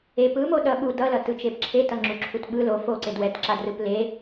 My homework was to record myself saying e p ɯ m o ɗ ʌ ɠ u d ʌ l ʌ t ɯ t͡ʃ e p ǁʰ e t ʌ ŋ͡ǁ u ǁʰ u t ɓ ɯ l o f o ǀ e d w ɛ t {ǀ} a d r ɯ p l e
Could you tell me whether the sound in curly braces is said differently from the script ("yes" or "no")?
yes